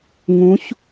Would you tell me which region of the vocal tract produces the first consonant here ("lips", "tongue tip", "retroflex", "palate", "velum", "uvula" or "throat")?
velum